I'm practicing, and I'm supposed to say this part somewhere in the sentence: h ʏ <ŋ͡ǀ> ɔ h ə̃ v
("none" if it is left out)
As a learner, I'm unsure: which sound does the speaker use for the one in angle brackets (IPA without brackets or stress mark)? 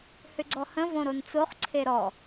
ɡ͡ǀ